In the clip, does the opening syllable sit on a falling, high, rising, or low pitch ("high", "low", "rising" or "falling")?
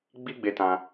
high